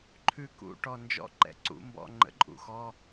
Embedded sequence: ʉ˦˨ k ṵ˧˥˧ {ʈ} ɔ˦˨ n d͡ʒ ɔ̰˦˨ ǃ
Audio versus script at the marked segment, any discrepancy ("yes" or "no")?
no